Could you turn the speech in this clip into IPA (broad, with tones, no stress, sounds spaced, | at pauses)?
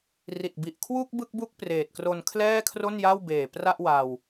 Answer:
r i˨˩ t̚ b i˨˩ ʔ kʰ w u˥˩ k̚ b ɯ˥˩ k̚ b u˥˩ k̚ p r eː˨˩ t̚ k r o˧ n kʰ l ɛː˥˩ kʰ r o˥˩ n j a˥˩ w b eː˨˩ p r a˥˩ ʔ w a˧ w